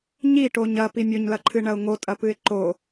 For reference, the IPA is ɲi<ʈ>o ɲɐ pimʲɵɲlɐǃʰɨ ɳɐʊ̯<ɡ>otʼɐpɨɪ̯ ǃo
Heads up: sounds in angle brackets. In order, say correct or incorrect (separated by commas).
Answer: correct, incorrect